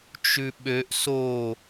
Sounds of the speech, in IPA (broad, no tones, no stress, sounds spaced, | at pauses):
t͡ʃ ʉ ɓ ø ʔ s o